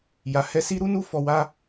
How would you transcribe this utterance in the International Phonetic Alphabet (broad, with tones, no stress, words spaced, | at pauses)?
ja˨hɛ˧si˦ ɾu˦nu˦ fɔ˧wa˦